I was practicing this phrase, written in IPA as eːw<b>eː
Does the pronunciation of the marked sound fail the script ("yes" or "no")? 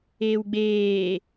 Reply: yes